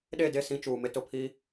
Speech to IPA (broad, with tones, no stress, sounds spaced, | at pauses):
ɗ e˦˨ d e˦˨ s ĩ˦ t͡ʃ uː˨ m ɪ˦ t ʊ˨ pʰ i˦